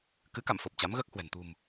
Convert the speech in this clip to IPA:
kɨ˨˦ka̰˧˨mfo˨˩p̚ t͡ɕa˨˦mɣəː˦˥k̚hwɛ̤˨˩n t̪ṳ˨˩m

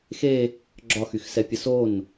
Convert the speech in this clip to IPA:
xe | ɡ͡ǁɒxyxsɛpʲə son

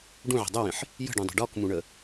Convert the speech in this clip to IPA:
ɖũʕə̤ dˤɵwĩħ | jə̤ɖũdˤi̤ ɖɔkmũɳə

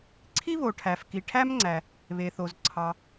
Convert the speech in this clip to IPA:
ǀʰi˥βo˩ʈʰæ˩fki˩ ʈʰæ˥mŋ͡ǀæ˩ | βe˩θo˩z ǀʰɑ˩

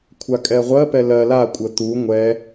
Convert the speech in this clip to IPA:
kʷʰakʼɛʁʷɜpɛ lɜ lakʷʼə t̪u ŋʷɛ

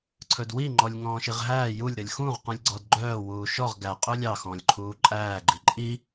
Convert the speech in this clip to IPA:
ǀʰɵdwi ŋ͡ǃɔlʲŋɔ̃ːʃiʁɦæː julʲ ɾɵlʲxũʁ qũlʲɡ͡ǀɔdɡ͡ǃœː wuːʃɔʁ ɡæ qʼɵlʲɑ xɔ̃lʲǃʰuːǃʼæː ɡ͡ǃiǃʼi

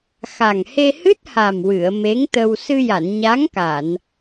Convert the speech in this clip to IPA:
xa˨˩ŋhe˧hɨ˦˥t̚ha˨˩m wɨ˨˩˨ə̯me˧˥ŋt̪ə˧w sɨ˧ja˨˩˨nɲa˧˥ŋka˨˩˨n

